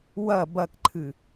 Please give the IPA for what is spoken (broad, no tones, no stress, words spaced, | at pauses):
wɐ bɐkǃʰɨ